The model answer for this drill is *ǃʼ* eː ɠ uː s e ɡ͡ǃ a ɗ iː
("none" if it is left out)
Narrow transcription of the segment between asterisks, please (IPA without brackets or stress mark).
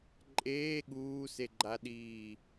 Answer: ǃʼ